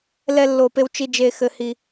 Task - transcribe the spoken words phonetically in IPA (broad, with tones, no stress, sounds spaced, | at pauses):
l ɛ˧ lː o˨ p e˧ w t͡ʃ i˧ d͡ʒ e˧ x ɘ˧ h i˧